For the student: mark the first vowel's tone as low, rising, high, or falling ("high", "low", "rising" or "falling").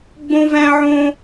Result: high